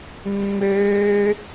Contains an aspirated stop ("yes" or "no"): no